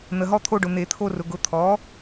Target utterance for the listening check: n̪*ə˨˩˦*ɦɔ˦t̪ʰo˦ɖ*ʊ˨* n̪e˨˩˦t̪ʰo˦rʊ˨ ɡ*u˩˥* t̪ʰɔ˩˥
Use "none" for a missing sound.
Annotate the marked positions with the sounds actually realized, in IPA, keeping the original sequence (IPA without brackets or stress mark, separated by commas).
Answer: ə˨, ʊ˨, ʊ˩˥